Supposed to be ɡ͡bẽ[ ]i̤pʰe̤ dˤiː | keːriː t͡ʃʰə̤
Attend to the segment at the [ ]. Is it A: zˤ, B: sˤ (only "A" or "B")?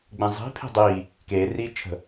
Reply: A